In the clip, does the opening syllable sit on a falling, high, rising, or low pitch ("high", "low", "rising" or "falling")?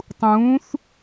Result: rising